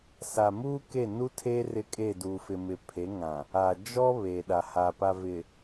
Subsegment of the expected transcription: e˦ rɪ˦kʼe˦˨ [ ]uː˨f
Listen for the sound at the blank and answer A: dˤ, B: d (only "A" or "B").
B